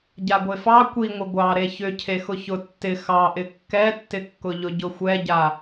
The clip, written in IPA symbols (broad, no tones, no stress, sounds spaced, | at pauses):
ɟ a ɡʷ e f ɑ kʷ i ŋʷ ɪ ɡʷ ɑ ɾ e ç ʏ cʰ e x ʊ ç ʊ tː ɪ x ɑ ʔ ɪ kː ɛ tː ɪ kː ʊ ʎ ʊ ɟ ʊ xʷ ɛ ɟ a